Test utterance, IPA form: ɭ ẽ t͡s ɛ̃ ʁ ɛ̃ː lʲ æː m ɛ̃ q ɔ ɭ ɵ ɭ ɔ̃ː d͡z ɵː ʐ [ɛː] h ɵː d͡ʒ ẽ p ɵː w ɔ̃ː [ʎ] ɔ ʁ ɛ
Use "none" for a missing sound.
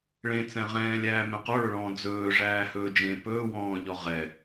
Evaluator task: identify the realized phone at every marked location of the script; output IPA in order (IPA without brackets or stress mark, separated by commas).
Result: æː, ʎ